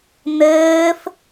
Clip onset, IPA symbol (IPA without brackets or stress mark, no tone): n̪